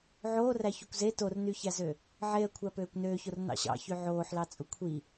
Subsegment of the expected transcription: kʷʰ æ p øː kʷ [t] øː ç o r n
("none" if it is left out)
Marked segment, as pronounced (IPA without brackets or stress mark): n